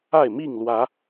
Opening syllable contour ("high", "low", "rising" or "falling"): falling